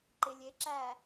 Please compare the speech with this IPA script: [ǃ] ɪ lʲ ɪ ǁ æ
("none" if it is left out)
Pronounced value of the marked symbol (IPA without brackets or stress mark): ǃ